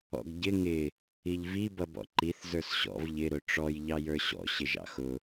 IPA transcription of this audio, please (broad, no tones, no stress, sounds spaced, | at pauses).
ɔ̰ ɡ ɟ ɪ ŋ ɪ | i ʎ v i b ʌ b ɔ̰ ǃ i θ z ə˞ s ɕ ɔ̰ v ʎ ɪ ɾ ʊ ʈ͡ʂ ɔ j ʎ ɑ j ə˞ ɕ ɔ̰ ɕ ɪ ʒ ɑ̰ x ʊ